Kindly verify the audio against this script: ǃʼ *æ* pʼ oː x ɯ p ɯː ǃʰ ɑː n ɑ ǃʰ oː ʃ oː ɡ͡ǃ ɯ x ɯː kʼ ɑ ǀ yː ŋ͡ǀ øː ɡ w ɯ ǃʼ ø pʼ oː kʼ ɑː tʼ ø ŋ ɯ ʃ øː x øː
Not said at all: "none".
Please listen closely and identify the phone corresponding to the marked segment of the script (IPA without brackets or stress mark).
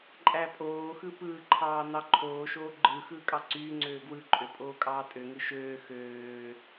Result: æ